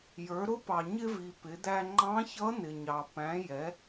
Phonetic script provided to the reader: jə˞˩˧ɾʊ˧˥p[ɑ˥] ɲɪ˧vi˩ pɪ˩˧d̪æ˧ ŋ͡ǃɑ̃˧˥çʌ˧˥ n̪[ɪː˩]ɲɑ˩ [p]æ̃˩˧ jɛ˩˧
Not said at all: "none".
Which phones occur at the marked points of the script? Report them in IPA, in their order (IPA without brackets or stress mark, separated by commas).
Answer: ɑ˩, ɪ˩, p